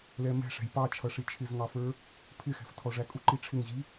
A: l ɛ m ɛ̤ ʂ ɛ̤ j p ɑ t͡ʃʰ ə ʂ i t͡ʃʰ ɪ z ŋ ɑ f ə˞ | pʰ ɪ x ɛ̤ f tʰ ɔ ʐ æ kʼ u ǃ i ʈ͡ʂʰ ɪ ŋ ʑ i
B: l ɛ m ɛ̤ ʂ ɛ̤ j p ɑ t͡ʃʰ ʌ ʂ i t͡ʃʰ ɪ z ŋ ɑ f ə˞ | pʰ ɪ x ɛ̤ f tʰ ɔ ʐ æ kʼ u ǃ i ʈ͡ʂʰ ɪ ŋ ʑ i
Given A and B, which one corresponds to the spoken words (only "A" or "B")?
B